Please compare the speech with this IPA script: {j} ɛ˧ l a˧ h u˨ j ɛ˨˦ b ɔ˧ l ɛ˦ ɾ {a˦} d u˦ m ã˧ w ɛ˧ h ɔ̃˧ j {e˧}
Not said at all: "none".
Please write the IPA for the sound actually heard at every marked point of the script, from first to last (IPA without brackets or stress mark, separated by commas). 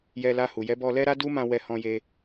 j, a˦, e˧